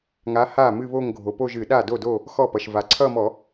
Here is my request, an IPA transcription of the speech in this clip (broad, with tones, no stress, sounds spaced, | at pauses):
ŋ a˨˥ h a˥˩ m ɨ˥˧ β o˥˧ ŋ ɡʱ o˩ p o˥˧ ʒ ɨ˧˩˧ ɗ a˥˩ d o˥˩ d o˥˩ | x ɔ˥˩ p ʌ˩ ʃ v a˩ ǀʰ ʌ˥˧ m ɔ˧˩˧